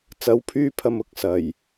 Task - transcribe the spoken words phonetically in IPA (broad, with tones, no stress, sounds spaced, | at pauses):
t͡s ɐ˨˥ w pʰ yː˧ pʰ ɐ˨ m ʊ˨ k̚ s ɐ˨˩ j